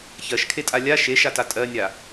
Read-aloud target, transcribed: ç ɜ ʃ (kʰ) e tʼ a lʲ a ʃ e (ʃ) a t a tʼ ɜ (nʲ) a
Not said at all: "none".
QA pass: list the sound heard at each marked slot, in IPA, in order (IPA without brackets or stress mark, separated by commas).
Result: kʰ, ʃ, nʲ